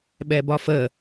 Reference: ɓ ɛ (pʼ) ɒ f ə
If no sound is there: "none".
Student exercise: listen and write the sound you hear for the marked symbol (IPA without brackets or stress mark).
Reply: b